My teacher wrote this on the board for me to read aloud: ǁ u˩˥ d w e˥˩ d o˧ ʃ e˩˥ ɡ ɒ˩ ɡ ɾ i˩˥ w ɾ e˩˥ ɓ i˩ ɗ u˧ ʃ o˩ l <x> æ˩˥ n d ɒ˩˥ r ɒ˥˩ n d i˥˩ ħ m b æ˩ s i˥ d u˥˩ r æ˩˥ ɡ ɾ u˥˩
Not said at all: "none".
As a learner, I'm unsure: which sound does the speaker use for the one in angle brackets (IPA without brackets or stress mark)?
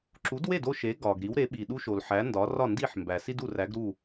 ħ